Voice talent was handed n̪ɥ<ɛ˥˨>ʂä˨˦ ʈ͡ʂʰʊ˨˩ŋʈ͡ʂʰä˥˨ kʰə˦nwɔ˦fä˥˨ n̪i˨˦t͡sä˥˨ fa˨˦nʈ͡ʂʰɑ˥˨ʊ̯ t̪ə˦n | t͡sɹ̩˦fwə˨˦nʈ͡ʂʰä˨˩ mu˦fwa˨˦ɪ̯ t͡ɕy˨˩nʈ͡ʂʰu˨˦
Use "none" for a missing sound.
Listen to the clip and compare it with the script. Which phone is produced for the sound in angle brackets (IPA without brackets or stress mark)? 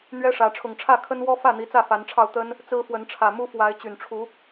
ɛ˦